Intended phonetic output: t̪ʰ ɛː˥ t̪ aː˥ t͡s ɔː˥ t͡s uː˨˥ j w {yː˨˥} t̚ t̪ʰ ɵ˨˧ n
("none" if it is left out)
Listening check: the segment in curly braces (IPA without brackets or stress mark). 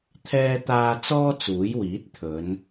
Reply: iː˨˥